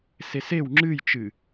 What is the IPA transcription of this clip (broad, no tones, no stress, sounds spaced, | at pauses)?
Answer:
s e s e w ŋ͡ǁ ɨ j t͡ʃ ɨ